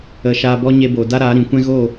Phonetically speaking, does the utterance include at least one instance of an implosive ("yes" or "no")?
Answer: no